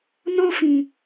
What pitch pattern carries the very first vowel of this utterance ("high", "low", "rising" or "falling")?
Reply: high